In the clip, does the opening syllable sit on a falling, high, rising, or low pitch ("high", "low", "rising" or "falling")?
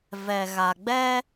low